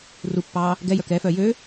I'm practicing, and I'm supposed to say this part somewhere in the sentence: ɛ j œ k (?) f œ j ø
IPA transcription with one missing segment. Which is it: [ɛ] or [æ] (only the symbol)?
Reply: ɛ